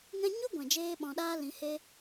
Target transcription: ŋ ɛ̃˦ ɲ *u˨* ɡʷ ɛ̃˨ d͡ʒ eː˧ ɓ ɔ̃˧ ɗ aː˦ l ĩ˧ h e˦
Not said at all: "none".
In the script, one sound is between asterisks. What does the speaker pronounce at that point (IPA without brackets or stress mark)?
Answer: u˦